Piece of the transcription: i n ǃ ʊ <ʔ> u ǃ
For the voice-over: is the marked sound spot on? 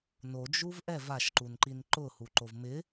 no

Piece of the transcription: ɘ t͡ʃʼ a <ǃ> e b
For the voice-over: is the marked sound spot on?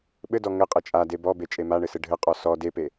no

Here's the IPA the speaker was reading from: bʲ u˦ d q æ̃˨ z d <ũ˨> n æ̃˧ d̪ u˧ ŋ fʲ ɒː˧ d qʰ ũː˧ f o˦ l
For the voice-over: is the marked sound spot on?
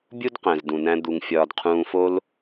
yes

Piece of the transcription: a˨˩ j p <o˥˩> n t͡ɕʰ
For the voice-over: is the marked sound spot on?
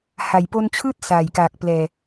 no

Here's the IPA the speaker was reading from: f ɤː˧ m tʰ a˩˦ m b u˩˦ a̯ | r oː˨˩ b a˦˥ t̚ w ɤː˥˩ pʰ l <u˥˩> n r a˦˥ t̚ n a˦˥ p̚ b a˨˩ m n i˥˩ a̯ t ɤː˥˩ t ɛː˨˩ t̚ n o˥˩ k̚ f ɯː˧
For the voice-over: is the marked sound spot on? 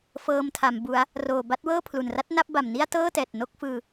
no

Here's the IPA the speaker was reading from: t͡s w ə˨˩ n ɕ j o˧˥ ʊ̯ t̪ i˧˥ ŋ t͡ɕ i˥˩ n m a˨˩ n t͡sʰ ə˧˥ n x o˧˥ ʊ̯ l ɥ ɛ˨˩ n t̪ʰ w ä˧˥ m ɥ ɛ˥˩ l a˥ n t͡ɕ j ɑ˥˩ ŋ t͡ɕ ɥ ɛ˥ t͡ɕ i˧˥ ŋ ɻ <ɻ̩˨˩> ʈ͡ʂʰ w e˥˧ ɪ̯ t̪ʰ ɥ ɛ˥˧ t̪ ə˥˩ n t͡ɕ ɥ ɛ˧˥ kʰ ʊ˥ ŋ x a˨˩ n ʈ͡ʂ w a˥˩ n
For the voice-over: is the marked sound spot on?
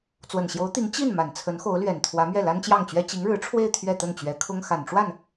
no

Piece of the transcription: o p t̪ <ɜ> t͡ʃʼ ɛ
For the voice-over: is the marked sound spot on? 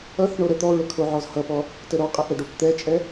no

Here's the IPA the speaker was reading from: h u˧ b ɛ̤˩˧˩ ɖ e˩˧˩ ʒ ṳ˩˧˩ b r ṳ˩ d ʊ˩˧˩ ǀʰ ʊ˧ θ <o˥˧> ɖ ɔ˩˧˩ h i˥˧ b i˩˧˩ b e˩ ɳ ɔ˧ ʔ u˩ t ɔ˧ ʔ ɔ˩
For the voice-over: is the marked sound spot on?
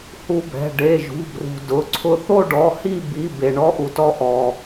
yes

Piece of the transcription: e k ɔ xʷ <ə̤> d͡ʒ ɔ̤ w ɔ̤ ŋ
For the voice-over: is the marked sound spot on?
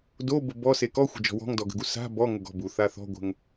yes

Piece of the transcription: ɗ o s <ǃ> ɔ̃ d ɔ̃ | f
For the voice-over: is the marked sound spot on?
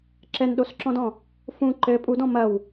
no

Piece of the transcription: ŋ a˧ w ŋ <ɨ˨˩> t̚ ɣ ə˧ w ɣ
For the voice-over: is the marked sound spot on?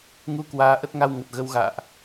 no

